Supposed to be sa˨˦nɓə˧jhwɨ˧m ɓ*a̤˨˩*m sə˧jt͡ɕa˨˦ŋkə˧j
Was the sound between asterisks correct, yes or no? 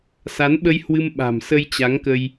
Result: yes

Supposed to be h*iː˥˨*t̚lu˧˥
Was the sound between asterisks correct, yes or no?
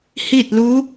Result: yes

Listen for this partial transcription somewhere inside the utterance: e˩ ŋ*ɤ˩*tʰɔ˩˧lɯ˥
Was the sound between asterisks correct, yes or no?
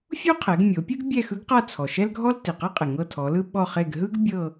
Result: no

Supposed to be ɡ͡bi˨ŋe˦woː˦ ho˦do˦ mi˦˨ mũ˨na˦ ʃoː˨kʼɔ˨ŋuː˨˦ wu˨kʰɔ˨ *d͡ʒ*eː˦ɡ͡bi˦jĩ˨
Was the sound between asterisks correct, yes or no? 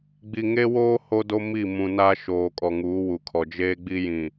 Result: yes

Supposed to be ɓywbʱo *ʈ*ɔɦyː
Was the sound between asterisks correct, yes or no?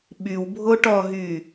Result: yes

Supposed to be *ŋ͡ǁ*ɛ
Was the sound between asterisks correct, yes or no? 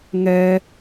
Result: no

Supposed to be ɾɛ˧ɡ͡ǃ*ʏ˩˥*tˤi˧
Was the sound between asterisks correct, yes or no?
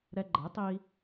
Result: no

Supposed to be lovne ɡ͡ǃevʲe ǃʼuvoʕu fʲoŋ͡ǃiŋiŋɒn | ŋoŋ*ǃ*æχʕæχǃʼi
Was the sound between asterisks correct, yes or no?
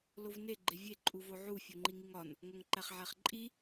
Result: yes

